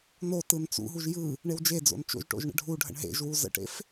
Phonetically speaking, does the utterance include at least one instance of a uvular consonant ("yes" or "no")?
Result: no